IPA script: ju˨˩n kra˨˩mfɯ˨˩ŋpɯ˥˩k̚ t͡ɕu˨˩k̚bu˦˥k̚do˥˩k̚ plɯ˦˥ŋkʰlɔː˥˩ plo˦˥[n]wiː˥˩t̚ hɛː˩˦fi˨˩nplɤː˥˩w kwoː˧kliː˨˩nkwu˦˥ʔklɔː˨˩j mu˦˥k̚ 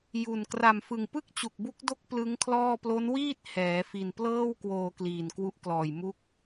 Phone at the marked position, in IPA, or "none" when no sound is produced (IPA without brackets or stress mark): n